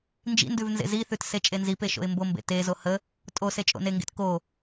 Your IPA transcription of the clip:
n d͡ʒ ḭ n d ʉ v n z ḛ z i θ ʉ t s e t͡ʃʼ e n z i p e ʃ o̰ ɪ̯ m b o m b ḛ t e z o h ə | tʼ o s e t͡ʃʼ o̰ n e ŋ ɡ ḛ t k o

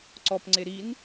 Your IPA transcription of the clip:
ǀ ɔ p ŋ͡ǀ e ɾ i n

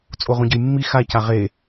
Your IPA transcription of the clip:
t͡sʼ o ʁ ũ ɟ ə j mː i x a c a ʁ e

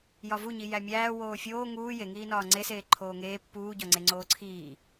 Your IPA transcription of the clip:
j ɒ v u ɲ i j æ mʲ æː w oː fʲ oː ŋ uː j e ŋ iː n ɒː ŋ͡ǀ e s eː ǃʰ oː ŋ eː pː uː ɟ ɒ ŋ͡ǀ e ŋ͡ǀ oː ǀʰ iː

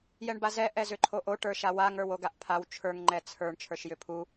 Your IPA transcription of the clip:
j ɛ ɳ b a z ɛ ʔ ɛ z ʏ ǃʰ o ʔ o ʈ ə˞ ʃ a w a ŋ ə˞ w o ɡ a ʔ pʰ a w t͡ʃʰ ə˞ ŋ ŋ͡ǃ ɛ t͡sʰ ə˞ ɳ t͡ʃʰ ə˞ ʃ j ʏ pʰ u

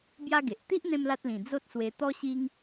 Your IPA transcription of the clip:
b j a˦ ɡ e˨ ʔ t̪ i˦ ʔ n̪ ẽ˧ m l a˦ t̚ l ĩ˨˩ d͡z o˦ t̚ s w e˧ t̪ ɔ˦ ɕ i˦ ŋ

